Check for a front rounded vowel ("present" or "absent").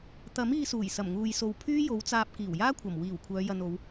present